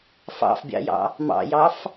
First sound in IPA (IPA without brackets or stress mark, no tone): f